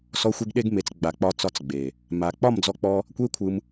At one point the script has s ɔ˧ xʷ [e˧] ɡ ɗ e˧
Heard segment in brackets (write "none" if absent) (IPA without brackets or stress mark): e˧